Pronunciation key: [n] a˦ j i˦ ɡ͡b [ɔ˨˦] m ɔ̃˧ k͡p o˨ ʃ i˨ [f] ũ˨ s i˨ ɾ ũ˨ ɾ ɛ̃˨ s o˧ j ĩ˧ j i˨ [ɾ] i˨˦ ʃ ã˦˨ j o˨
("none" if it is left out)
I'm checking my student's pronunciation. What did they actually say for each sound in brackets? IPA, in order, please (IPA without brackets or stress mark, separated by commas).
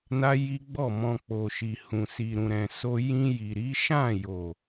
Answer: n, ɔ˦˨, h, ɾ